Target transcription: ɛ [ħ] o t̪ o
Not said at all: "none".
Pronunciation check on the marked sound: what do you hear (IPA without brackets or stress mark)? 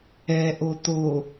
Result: ʔ